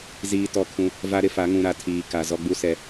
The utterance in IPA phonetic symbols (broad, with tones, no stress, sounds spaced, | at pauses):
z iː˨ t ɔ˦ kʰ ũ˦ | v a˦ ɾ ɪ˦ f a˨˦ ŋ ũ˨ ɾ a˨ tʰ iː˨ k a˨ z ɔ˦ ɡ͡b u˦ s ɛ˨